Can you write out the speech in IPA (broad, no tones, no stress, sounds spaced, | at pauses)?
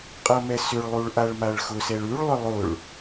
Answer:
qʼ ʌ m ɛ s ʏ ɭ lˠ u ɭ ʔ a ɭ m a ɭ x ʊ s ɛ ɭ ʉ ɭ lˠ ʏ lˠ ʊ ɭ